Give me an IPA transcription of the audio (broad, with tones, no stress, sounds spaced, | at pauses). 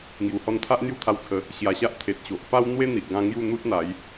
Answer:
ŋ j u˨˩ h ɔ˧ n t̪ʰ a˦ ʔ n̪ j u˦ t̪ʰ a˧ w t͡sʰ ə˨˦ | ɕ j a˨˩ ɕ a˦ ʔ t̪ʰ e˨ t̚ ɕ o˨ ʔ p a˦ w n̪ w e˦ n̪ i˨ ʔ ɡ ã˧ ŋ j u˥˧ n̪ u˦ t̚ n̪ a˨˦ j